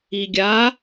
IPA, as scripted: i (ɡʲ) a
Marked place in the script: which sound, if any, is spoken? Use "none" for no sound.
ɡʲ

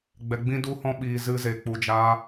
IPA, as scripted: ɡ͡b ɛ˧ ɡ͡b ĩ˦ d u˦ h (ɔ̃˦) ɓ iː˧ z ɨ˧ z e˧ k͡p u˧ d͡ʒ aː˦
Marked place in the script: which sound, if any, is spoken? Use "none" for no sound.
ɔ̃˦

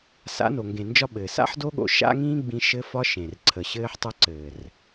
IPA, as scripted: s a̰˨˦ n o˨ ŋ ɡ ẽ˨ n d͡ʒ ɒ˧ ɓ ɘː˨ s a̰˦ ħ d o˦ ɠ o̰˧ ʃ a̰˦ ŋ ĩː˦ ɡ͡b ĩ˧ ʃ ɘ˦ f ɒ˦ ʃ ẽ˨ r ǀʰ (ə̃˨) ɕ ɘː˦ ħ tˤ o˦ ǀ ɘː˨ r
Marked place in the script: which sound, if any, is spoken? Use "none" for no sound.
ə˨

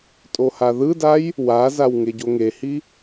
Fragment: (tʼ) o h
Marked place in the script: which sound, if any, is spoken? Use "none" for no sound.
tʼ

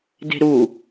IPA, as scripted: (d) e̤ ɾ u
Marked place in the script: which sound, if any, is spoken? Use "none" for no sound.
d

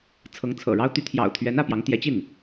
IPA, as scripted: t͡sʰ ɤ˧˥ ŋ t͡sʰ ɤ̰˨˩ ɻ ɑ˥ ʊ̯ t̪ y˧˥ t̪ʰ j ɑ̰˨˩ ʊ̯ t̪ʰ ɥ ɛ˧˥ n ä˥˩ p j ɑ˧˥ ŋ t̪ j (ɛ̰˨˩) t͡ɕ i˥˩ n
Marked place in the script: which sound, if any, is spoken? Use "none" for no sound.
ɛ˧˥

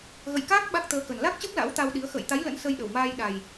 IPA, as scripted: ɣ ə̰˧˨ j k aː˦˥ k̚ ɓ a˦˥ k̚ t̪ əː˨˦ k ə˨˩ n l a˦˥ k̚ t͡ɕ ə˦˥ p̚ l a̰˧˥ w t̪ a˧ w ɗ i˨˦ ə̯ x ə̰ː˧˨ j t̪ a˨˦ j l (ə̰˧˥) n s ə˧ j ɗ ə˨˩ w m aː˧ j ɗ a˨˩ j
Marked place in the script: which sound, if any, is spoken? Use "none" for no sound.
ə̰˧˥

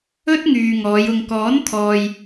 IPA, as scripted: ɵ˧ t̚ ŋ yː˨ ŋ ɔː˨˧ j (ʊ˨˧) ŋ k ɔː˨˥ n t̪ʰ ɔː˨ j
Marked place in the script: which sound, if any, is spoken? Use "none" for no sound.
ʊ˨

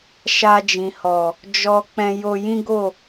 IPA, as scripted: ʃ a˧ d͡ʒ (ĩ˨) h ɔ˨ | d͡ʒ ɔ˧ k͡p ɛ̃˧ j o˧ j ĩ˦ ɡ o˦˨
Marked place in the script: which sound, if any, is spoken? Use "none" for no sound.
ĩ˨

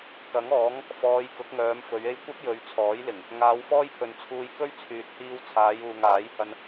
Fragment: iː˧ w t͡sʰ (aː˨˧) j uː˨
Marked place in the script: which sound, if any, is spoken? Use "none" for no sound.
aː˨˧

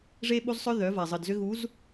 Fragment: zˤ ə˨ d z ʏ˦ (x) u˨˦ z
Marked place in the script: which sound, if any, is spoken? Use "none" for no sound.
ɣ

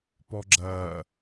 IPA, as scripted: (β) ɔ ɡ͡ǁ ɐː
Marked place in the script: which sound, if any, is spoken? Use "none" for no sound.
p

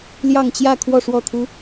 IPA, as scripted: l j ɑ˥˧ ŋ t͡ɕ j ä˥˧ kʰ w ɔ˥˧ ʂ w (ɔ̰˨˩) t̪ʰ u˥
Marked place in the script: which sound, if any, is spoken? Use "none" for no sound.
ɔ˥˩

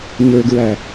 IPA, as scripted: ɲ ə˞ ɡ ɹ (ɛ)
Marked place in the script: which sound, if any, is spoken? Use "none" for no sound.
æ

